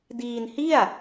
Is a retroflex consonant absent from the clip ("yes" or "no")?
yes